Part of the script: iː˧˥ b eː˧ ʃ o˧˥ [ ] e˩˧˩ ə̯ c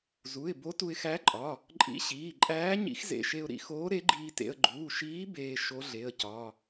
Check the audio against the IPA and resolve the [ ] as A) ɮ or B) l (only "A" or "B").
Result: A